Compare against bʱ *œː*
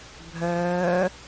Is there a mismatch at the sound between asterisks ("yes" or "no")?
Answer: no